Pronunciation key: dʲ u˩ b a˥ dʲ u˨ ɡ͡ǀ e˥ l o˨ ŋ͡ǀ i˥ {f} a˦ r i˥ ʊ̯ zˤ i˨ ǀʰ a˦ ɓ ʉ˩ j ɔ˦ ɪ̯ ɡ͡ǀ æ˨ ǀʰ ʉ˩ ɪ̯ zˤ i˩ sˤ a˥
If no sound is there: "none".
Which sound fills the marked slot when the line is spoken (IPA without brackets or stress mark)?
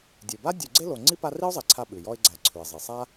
p